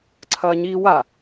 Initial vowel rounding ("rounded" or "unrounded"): unrounded